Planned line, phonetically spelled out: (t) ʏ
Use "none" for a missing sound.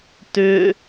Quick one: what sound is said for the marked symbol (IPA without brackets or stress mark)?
t